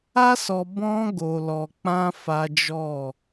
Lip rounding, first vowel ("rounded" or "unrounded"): unrounded